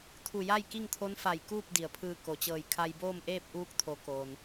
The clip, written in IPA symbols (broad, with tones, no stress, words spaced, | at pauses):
t̪ʰu˧˩ja˥˨j ki˥˨ŋt̪ʰo˧˥n fa˧˩j kuː˥˨p̚ di˩ə̯pʰɯː˧ ko˩t͡ɕɤː˧˩j kʰa˧jboː˥˨mʔeː˥˨p̚ ʔuː˧˥k̚t̪ʰo˩˧ koː˩n